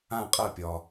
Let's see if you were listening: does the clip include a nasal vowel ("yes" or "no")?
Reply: yes